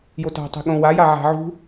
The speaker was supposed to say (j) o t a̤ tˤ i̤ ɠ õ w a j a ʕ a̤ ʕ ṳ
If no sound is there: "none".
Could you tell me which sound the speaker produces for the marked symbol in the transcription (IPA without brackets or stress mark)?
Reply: j